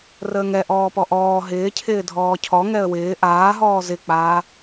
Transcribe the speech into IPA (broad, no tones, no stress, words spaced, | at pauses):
rəːŋɛ ʔɔːpɔʔɔː ɦɪːcʰɪː dʱɔːcʰɔ ŋɛə̯wɪː ʔaːɦɔː zɪk͡paː